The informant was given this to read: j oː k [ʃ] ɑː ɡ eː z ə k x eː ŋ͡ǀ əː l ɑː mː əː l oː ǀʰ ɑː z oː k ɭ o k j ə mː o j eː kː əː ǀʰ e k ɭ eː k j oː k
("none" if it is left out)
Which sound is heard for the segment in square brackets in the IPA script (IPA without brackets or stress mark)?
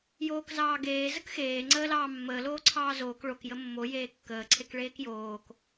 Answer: z